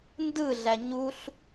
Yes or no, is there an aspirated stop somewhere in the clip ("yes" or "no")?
no